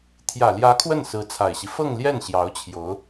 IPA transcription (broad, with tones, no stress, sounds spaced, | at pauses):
t̪ʰ j ä˨˩ l j ä˧˥ kʰ w ə˥˩ n s ɹ̩˧˥ t͡sʰ a˨˩ ɪ̯ ɕ i˦ f ɤ˥˧ ŋ l j ɛ˥˩ n ɕ j ɑ˧˥ ʊ̯ t͡ɕʰ j o˧˥ ʊ̯